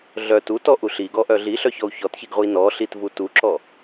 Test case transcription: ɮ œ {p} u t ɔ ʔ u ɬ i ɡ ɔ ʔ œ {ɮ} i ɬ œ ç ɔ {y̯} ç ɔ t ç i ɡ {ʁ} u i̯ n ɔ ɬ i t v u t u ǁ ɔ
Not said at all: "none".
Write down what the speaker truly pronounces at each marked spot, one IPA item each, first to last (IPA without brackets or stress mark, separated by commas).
t, ɮ, u̯, ʁ